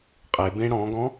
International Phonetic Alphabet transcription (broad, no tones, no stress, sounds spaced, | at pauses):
qʼ e b ẽ ɽ ɔ̃ ɡ ɔ̃